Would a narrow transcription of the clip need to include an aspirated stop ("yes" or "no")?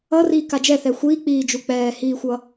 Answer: no